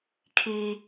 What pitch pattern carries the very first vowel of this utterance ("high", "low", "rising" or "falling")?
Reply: low